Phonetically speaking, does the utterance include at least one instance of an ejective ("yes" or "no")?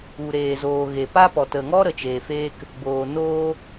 no